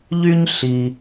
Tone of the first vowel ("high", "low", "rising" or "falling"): high